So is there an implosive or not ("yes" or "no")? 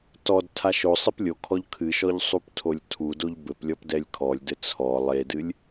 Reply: no